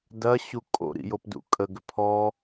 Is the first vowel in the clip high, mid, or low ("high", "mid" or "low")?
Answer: low